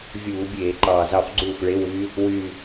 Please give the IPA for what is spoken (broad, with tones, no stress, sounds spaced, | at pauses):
vʲ uː˧˩˧ bʲ eː˧˩˧ ǃ ɑː˨˩ z ɑ˥˩ f ɡ͡ǀ uː˥˩ f ɭ e˧˥˧ w y˦˥ | w y˨˩